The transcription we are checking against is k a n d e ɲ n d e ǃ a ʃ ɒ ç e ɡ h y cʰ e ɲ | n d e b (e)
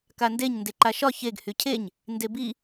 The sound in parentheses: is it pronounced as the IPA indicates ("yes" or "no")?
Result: no